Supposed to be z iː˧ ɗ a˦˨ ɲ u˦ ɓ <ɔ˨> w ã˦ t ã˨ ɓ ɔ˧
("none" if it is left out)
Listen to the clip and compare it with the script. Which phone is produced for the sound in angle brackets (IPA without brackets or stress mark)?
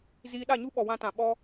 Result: ɔ˨